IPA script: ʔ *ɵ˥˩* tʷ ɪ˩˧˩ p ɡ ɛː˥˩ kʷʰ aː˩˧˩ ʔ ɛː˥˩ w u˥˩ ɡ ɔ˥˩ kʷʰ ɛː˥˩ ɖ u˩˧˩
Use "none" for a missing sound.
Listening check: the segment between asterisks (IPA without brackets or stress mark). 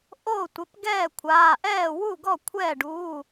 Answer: o˥˩